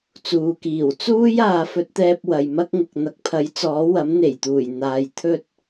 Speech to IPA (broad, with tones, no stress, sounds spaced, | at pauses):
t͡s uː˨ k iː˨˩ w t͡s uː˥ j aː˨˧ f ɵ˧ t̚ t̪ ɛː˧ p̚ w ɐ˨ j m ɐ˥ k̚ ŋ ʊ˨ k̚ n̪ ɐ˨ k̚ pʰ ɐ˨˥ j t͡s ɔː˨˥ w ɐ˨˥ m n̪ e˨˩ j t̪ uː˨˩ j n̪ aː˨ j t̪ʰ ɵ˧ t̚